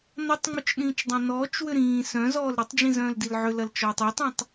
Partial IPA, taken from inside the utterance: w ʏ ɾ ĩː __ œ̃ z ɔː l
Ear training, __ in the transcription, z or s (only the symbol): s